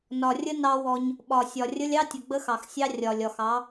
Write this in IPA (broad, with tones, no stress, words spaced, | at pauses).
nɒ˨rʲə˦ nɑ˦wɔ˦ɲ | ɓɒ˨sʲɒ˨rʲə˦lʲɑ˦ tʲə˨ɡ͡bə˦xɑ˨xsʲɑ˦ rʲɒ˨lʲ ɒ˨xɑ˨˦